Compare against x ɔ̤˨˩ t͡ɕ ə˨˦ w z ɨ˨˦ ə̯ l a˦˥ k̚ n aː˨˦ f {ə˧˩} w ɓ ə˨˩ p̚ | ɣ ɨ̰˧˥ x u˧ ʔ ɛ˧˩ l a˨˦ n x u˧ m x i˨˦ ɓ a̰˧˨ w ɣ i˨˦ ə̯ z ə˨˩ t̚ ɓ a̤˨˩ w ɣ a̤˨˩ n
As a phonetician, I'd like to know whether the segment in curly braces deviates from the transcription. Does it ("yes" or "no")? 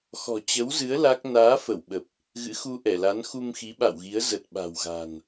no